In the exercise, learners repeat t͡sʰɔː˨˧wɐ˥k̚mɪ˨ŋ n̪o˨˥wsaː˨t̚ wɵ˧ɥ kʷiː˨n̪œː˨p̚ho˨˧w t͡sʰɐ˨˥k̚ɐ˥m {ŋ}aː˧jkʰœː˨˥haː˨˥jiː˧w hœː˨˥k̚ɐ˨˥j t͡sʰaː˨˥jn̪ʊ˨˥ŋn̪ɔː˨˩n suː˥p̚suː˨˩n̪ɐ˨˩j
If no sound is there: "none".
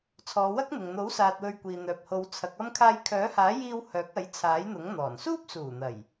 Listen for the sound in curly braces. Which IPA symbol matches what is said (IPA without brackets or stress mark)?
kʰ